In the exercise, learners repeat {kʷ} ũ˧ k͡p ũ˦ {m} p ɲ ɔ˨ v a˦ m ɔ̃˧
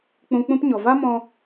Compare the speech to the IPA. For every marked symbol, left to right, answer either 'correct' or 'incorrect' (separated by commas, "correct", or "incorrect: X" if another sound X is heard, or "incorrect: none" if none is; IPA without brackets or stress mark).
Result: incorrect: k͡p, incorrect: none